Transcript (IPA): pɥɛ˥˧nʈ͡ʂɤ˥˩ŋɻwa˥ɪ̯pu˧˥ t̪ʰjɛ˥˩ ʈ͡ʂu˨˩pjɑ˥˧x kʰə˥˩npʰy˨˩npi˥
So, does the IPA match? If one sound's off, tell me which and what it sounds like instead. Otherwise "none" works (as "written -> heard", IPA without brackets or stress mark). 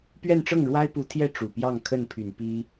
x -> ŋ